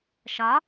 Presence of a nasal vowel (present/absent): absent